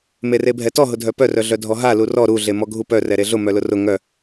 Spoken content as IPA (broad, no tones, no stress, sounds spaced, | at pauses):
m e r e bʱ ɛ t ɔ ɦ ʊ dʱ œ p œ r œ ɮ œ dʱ ɔ ɦ a l u r ɔ ɾ u ɮ e m ɔ ɡʱ u p œ r ɛ ɾ e ɮ ʊ m œ l ʊ r ʊ ŋ œ